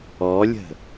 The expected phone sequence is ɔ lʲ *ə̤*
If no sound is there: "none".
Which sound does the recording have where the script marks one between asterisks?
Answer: ə̤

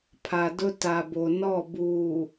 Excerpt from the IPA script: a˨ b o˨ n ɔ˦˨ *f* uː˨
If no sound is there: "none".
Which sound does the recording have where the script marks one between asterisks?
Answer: b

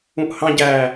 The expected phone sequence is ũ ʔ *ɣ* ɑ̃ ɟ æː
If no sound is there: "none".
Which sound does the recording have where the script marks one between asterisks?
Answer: h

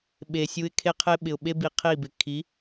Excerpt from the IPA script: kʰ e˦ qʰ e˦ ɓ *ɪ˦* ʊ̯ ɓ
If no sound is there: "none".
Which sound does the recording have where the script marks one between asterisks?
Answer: ɪ˨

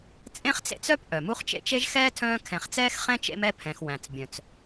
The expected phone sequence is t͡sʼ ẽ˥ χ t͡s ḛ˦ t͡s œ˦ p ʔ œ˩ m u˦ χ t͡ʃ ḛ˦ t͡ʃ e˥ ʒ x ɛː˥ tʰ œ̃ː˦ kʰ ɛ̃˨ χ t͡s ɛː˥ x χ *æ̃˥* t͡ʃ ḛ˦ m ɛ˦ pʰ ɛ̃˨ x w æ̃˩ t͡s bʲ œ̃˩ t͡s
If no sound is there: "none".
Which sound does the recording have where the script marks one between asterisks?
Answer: ɛ̃˥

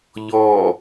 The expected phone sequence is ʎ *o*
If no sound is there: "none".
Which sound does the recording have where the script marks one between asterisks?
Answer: ɔ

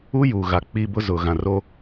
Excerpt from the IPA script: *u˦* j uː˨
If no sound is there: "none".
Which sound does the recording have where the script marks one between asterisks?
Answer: u˦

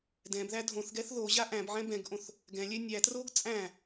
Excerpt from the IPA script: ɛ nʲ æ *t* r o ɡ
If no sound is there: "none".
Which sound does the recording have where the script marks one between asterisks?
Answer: t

